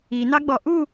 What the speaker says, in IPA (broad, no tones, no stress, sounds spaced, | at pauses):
i n ɑ ɡ͡b ɔ ʔ u